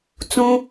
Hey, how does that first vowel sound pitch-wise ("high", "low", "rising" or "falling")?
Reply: high